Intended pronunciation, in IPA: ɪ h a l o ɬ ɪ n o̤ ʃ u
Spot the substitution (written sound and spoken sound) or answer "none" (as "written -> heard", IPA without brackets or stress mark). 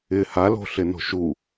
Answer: o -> o̤